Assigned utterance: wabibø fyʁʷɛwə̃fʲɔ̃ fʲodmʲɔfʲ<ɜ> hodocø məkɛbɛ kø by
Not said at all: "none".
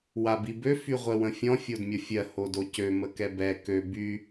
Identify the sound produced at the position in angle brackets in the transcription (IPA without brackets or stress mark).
ɜ